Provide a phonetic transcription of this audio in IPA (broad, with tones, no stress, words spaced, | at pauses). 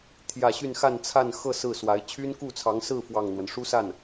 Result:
t̪ʰjä˥˧ ɕy˥˧nxa˥˧nt͡sʰa˥˧nxɤ˥˧ sɹ̩˥˩swa˧˥ɪ̯ t͡ɕʰy˥nku˥˩t͡sʰɑ˧˥ŋsɹ̩˥˧ fwɑ˥˩ŋn̪wə˩n ʂu˥sa˥˩n